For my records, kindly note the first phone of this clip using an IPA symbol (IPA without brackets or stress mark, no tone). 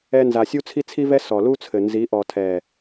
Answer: ɛ